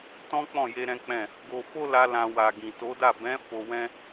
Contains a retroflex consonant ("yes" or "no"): no